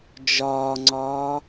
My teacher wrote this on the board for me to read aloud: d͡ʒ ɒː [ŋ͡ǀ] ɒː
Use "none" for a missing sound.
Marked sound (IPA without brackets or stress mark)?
ŋ͡ǀ